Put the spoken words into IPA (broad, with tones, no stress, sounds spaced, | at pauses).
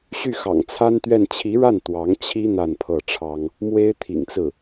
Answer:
ɕ y˥˩ x ɑ̰˨˩ ŋ t͡sʰ a˥ n t̪ ɥ ɛ˥˩ n t͡ɕʰ i˧˥ ɻ a˥˩ n t̪ w ɑ˧˥ ŋ t͡ɕʰ i˥ n̪ a˥˧ n pʰ ɤ˥˩ ʈ͡ʂʰ ɑ˥ ŋ | m w e˥ ɪ̯ t̪ʰ ḭ˨˩ ŋ t͡s ɹ̩˥˩